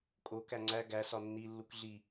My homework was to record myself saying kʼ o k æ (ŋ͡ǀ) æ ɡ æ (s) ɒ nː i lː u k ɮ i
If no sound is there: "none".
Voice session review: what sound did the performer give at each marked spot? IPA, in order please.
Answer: ŋ͡ǀ, s

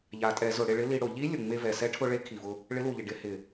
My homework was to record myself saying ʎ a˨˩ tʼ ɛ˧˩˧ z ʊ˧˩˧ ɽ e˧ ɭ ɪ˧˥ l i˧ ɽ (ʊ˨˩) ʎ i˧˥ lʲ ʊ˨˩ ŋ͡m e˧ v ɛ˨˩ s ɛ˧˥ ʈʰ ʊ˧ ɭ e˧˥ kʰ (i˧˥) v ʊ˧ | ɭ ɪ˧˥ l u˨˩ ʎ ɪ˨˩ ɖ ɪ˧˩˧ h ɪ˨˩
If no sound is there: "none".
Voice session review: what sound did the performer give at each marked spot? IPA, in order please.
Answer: ʊ˧˩˧, i˨˩

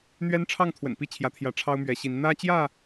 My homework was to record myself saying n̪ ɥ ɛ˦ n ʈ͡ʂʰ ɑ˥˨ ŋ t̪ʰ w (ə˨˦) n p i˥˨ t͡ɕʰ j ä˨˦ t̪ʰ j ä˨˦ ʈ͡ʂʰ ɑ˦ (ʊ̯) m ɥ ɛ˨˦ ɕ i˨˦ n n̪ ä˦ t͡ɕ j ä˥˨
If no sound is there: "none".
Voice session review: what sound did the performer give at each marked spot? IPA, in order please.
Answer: ə̰˨˩, ʊ̯

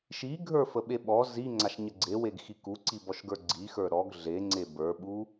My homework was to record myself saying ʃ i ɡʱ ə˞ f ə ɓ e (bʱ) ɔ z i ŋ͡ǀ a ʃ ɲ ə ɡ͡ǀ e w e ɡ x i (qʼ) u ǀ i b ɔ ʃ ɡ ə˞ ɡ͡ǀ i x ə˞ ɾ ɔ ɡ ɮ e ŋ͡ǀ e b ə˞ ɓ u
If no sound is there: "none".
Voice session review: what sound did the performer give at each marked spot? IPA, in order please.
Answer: ɓ, k

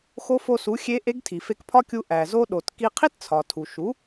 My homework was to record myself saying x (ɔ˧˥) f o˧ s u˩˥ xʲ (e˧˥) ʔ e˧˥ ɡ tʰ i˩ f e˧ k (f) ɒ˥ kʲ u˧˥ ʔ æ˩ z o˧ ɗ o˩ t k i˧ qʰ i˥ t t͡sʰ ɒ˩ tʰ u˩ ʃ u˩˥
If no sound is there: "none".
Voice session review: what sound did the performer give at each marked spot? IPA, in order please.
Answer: o˧˥, e˧˥, pʰ

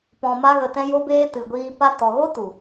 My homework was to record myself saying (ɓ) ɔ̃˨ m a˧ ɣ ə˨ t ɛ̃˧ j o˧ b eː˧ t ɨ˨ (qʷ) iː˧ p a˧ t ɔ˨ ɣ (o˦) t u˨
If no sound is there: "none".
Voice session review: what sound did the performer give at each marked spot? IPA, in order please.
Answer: p, ɡʷ, o˦

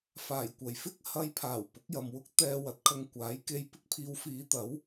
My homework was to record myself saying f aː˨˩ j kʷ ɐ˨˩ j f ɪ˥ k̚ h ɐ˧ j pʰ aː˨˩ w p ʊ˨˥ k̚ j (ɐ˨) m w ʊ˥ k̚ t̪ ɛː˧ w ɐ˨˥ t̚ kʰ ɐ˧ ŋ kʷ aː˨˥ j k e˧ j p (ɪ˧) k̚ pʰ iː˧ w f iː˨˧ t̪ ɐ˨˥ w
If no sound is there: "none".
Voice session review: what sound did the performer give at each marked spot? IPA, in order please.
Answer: ɐ˨, ɪ˥

